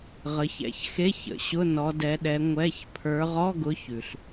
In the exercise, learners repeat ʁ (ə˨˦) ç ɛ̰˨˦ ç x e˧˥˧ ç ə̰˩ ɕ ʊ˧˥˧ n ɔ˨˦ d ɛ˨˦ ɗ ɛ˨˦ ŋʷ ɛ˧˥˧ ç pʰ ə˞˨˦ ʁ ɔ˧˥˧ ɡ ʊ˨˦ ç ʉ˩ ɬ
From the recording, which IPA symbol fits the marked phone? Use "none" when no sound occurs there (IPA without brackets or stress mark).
ə˨˦